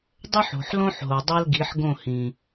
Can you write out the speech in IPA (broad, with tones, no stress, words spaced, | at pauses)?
dˤø˦ħo̤˨ħlõ˦ħɦo˨ dˤɤ˦lɡi˨˦ħɡõ˦˨hĩ˨